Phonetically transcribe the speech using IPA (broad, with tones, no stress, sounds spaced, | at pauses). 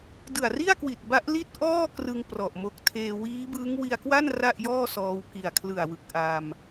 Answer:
d ɯ˨˩ a̯ r i˥˩ a̯ k w i˨˩ t̚ b a˦˥ ʔ l i˥˩ t̚ ʔ ɔː˥˩ k r ɯ˧ ŋ p r ɔ˨˩ ʔ m o˦˥ k̚ tʰ eː˧ w iː˦˥ b ɯː˦˥ ŋ w i˧ a̯ k w a˥˩ n r a˥˩ ʔ j ɔː˥˩ s ɔː˧ w k i˨˩ a̯ kʰ l ɯ˨˩ a̯ w ɯ˨˩ k̚ ʔ a˧ m